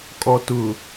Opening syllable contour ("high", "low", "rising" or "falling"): low